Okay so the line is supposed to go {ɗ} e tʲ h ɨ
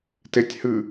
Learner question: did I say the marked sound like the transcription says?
no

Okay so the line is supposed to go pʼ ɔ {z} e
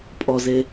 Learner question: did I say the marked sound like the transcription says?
yes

